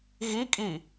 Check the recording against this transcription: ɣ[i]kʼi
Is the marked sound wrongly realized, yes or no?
no